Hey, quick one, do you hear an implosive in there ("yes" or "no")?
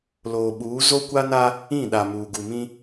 yes